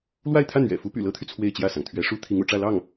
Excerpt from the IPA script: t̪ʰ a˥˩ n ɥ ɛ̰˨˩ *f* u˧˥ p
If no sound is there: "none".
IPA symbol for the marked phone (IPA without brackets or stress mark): f